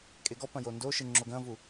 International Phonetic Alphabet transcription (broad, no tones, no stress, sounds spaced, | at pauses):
kʼ e ɡ ɔ p ɐ̃ j o n d o ʃ ɨ ŋ͡ǁ o ɡ ɐ̃ v u